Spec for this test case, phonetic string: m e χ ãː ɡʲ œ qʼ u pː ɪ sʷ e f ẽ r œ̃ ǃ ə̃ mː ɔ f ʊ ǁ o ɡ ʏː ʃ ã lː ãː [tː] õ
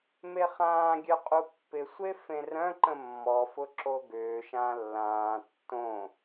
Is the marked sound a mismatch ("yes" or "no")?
no